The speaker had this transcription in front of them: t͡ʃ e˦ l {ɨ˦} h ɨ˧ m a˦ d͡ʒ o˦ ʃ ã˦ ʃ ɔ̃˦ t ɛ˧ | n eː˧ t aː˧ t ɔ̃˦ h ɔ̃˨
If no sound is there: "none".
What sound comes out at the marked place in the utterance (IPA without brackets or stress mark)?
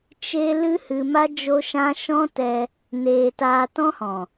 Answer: ɨ˦